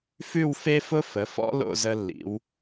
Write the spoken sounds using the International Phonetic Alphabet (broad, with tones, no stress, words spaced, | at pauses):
fʉ˥˧wfe˥fʊ˥fə˩˧ fɔ̰˥lo̰˥˧zə˧lːḭ˩˧w